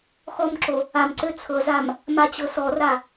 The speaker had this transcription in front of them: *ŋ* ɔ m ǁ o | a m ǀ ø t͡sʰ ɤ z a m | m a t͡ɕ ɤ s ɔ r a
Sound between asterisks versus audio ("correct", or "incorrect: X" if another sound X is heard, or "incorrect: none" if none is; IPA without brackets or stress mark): incorrect: x